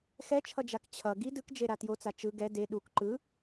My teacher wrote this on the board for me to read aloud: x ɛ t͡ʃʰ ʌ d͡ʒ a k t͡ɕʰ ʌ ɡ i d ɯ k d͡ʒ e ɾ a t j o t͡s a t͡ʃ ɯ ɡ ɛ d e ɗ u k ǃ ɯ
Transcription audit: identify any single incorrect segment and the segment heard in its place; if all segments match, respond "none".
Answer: none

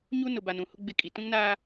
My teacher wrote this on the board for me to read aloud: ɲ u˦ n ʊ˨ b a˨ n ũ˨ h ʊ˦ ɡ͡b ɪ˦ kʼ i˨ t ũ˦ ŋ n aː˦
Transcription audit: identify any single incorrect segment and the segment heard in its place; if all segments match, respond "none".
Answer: none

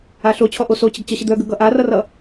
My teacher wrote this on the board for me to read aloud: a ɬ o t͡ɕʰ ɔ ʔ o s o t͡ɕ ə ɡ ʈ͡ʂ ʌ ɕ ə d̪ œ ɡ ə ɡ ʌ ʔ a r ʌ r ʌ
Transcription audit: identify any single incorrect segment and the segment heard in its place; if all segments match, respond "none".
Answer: ʈ͡ʂ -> t͡ɕ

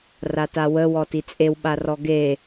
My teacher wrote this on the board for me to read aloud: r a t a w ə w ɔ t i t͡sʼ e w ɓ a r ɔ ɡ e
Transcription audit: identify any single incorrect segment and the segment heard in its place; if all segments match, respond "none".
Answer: none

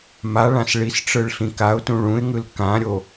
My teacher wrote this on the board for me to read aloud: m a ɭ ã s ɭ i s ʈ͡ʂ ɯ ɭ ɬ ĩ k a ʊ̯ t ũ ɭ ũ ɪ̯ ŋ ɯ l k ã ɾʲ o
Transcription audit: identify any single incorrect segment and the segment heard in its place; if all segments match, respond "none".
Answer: none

